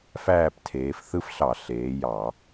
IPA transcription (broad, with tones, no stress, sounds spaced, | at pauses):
f æː˦˨ p tʰ eː˩˧ f θ ɯ˦ f ɬ ɑ˧˩˧ ɬ eː˩˧ j ɑ˧˩˧